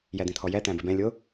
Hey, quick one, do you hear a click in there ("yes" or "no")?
no